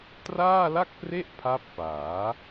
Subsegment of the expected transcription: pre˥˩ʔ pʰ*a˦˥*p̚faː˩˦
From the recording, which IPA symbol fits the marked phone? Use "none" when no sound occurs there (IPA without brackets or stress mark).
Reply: a˦˥